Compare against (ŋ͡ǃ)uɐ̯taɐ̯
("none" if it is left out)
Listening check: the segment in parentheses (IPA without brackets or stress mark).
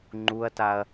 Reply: ŋ͡ǃ